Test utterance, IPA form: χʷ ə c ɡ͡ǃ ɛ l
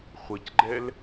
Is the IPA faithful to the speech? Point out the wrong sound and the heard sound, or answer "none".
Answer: none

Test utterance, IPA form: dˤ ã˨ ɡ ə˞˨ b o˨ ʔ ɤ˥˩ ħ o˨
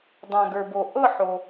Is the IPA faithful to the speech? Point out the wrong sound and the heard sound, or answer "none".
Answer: none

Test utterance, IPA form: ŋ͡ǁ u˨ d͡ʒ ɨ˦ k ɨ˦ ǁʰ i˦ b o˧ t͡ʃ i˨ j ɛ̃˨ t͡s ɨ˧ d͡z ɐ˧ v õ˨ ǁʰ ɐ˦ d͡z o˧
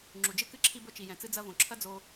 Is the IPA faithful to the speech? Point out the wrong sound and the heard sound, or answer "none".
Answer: none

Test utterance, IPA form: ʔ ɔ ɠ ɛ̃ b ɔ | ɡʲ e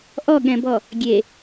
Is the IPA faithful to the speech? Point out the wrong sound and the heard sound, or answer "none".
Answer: none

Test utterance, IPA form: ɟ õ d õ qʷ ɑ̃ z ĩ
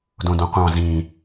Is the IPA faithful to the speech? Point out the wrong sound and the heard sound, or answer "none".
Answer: ɟ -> d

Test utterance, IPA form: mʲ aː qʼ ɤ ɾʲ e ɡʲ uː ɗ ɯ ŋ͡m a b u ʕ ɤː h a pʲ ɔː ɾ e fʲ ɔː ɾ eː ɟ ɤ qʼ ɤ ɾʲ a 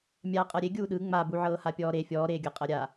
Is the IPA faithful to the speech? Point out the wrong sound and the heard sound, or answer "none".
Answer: ɟ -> ɡʲ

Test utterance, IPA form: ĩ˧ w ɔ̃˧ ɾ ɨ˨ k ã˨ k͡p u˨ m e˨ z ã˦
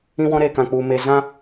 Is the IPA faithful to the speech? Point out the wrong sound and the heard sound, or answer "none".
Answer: ɨ˨ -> e˨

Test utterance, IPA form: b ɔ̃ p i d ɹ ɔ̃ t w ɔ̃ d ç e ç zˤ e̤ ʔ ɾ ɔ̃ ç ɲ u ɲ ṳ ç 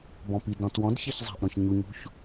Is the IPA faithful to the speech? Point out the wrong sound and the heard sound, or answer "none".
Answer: ɹ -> ɾ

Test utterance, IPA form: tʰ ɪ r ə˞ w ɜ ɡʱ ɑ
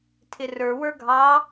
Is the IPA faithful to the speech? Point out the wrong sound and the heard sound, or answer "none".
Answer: ɜ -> ə˞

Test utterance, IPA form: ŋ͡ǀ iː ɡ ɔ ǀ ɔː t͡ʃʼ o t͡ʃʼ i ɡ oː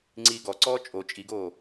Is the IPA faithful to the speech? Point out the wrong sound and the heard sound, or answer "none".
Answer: none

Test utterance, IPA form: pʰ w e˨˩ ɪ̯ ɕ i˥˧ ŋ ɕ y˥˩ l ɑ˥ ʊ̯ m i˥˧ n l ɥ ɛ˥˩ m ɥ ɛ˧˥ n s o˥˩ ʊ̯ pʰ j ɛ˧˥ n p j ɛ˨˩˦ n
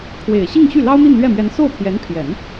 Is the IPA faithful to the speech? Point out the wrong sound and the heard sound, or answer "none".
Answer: p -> pʰ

